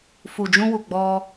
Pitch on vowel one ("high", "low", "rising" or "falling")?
low